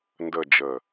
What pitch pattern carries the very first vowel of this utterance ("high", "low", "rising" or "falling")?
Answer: falling